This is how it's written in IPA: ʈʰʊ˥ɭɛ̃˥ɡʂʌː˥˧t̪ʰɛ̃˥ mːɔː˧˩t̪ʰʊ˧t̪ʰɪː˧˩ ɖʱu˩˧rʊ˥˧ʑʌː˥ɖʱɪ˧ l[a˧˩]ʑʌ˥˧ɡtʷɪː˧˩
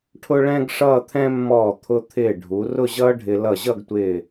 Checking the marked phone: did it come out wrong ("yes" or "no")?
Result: yes